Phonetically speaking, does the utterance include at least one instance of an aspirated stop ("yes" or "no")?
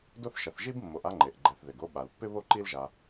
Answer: no